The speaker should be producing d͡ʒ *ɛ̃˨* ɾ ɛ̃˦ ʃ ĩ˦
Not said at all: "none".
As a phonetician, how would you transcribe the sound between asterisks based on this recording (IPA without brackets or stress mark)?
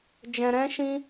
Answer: ɛ̃˨